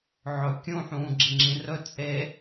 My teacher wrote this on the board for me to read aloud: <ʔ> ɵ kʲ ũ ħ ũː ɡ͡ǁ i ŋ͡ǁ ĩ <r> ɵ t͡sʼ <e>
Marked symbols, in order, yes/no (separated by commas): no, yes, yes